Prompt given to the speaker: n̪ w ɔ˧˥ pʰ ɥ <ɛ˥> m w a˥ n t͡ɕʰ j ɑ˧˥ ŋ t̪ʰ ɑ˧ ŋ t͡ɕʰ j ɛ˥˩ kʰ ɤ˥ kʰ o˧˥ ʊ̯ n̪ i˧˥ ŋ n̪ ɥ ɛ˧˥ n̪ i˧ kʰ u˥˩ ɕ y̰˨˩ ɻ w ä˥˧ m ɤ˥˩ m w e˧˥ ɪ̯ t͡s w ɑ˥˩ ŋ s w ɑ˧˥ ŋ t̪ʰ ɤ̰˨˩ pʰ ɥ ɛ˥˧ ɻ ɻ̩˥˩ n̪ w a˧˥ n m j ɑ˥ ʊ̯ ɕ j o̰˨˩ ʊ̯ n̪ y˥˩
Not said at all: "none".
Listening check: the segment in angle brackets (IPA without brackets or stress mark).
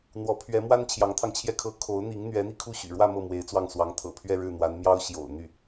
ɛ˧˥